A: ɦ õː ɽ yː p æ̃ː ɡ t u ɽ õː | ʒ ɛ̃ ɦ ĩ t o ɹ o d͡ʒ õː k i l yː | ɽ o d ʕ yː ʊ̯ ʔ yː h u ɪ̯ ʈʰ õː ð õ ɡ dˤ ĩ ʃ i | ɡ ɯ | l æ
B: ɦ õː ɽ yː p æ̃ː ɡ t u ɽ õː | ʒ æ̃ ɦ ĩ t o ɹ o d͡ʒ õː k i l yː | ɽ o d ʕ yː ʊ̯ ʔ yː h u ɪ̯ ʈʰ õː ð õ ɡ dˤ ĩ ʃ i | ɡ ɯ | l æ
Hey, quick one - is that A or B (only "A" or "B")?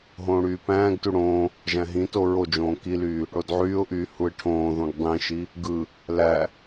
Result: B